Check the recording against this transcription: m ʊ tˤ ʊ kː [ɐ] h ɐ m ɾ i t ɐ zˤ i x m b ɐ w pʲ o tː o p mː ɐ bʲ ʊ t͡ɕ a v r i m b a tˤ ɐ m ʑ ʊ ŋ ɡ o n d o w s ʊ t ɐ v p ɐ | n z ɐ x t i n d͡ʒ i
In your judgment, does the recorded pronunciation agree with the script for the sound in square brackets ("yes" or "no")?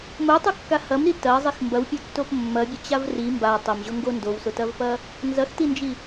no